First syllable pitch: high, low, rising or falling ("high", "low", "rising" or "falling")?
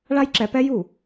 high